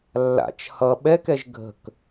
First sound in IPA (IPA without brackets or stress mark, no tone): lː